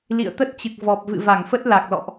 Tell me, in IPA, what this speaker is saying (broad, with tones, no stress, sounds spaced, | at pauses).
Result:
l ḭ˧˨ ə̯ t̪ ə˦˥ t̚ t͡ɕ ɨ˨˩ k̚ v ɔ˨˩ p̚ v ɨ̰˧˨ v a˧˩ ŋ f ə˦˥ t̚ l a˨˩ k̚ l ɔ̰˧˨ ʔ